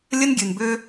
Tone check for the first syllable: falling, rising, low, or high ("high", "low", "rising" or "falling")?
high